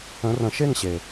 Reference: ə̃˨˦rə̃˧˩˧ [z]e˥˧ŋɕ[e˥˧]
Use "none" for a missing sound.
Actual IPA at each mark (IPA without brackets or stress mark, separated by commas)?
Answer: ʃ, e˩